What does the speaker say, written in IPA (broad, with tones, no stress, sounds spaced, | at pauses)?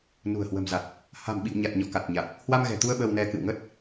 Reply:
n ṳ˨˩ ə̯ h w ə̤˨˩ m z a˨˩ t̚ | h a̤˨˩ m ɓ ḭ˧˨ w ɲ a˨˩ t̚ ɲ ɔ̰˧˨ k a˨˩ t̚ ɲ a˨˩ t̚ | h w a˧ m ɣ ɛ̤˨˩ t̪ u˧ ə̯ ɓ ə˧ w n ɛ˧ k ɨ̰˧˨ w ŋ ə˦˥ t̚